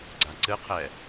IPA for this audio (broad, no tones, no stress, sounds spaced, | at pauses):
ɡ͡ǀ a ǀ ɨ qʰ ɛ